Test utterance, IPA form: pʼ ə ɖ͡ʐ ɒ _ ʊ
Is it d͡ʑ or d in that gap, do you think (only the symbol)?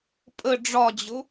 d͡ʑ